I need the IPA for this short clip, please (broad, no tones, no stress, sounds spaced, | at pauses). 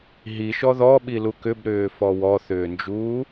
ɦ i ʃ ɔ ð ɔ ɓ i l u k ʏ b ɾ ʏː f ɔ w ɔ θ ʏː n d͡ʒ uː